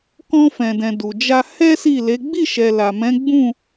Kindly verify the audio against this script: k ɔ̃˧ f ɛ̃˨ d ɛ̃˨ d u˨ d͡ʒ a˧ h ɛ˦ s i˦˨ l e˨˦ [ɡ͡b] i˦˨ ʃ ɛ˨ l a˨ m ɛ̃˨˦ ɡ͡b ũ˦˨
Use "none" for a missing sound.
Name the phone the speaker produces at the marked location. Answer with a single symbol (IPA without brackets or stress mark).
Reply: ɡ͡b